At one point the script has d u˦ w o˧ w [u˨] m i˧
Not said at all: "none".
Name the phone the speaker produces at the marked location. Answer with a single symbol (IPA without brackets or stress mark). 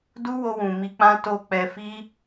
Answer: ũ˨